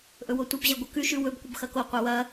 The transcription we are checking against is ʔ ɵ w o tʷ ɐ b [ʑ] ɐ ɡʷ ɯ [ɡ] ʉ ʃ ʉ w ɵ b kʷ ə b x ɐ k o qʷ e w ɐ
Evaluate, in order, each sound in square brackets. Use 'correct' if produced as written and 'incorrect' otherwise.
correct, incorrect: k

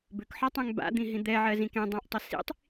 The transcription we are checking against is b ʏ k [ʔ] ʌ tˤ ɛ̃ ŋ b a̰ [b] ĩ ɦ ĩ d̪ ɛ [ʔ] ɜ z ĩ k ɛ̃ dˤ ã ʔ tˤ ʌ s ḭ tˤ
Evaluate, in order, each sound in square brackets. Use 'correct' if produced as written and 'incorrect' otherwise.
incorrect: ħ, incorrect: d̪, incorrect: ʕ

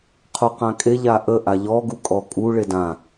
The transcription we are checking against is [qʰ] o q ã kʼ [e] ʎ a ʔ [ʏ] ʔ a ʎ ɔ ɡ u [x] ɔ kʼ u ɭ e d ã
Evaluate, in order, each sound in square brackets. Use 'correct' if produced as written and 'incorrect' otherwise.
correct, correct, incorrect: ə, incorrect: kʼ

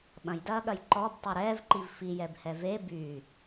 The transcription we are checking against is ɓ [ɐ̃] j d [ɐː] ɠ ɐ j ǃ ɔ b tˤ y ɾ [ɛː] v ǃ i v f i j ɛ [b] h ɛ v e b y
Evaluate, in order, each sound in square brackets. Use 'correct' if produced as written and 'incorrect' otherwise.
correct, correct, correct, correct

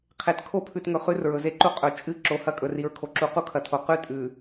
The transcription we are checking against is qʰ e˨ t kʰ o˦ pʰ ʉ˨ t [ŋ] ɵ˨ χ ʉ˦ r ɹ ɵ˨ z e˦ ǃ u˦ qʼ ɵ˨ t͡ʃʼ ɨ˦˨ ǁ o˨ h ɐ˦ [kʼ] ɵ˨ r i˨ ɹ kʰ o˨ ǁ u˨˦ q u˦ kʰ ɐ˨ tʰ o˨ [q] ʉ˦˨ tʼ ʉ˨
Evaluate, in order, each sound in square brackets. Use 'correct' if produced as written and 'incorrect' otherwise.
correct, correct, correct

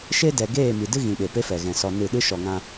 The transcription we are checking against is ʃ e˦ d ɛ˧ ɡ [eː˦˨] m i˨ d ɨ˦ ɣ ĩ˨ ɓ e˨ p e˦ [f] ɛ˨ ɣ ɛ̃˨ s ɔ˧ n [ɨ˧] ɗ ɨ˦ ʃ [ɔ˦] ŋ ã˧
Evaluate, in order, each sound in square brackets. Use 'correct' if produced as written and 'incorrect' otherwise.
correct, correct, incorrect: ɨ˦˨, incorrect: ɔ˨

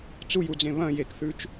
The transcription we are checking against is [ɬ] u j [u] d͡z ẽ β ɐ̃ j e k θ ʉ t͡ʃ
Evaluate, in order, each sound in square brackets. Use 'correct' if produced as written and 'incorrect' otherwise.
incorrect: t͡s, correct

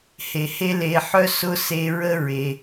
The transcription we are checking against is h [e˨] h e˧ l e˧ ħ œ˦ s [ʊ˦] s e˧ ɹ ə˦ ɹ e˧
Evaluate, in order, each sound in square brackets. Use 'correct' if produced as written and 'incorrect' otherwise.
correct, correct

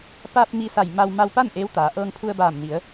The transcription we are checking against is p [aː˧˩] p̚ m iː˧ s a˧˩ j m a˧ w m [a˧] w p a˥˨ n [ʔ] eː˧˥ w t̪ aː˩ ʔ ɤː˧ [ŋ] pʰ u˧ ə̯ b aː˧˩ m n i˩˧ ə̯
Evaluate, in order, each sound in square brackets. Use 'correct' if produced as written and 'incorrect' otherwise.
incorrect: aː˧, correct, correct, correct

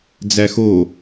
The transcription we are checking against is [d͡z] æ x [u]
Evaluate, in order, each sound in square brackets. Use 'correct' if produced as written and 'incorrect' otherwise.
correct, incorrect: o

